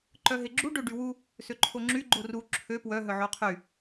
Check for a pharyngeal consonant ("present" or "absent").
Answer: present